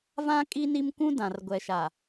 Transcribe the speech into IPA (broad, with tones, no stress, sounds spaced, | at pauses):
v ã˦ kʼ i˦ n i˦ m kʷ ũ˦ d ã˨ r ɡʷ ɛ˨ ʃ a˨